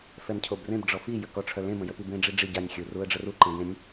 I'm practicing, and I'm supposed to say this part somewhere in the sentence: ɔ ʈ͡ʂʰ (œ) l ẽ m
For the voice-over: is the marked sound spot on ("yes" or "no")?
yes